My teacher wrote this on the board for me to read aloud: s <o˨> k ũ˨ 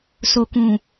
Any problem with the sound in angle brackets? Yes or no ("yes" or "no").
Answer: no